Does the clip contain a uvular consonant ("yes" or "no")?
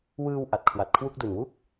no